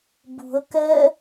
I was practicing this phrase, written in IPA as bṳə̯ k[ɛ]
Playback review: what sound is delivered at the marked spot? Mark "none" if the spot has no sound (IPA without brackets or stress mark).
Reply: ɛ